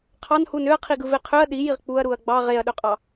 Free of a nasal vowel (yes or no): yes